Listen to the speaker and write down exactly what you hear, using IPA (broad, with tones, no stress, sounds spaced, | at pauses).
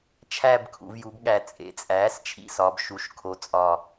t͡ʃʰ æ˥˧ b kʰ ṵ˩˧ v j u˩˧ b ɠ æ˨˩ t͡sʼ ḛ˩˧ t͡sʼ æː˩˥ s t͡ʃʰ ḭ˥˧ s ɒ˩˧ b ʃ u˩˥ ʃ kʰ o˩˥ t͡sʼ ɒ˨˩